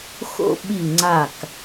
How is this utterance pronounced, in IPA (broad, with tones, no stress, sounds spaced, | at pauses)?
x o̰˥˧ ɓ i˥˧ ŋ͡ǀ a˥˧ k